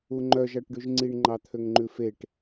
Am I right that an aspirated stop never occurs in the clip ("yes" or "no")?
no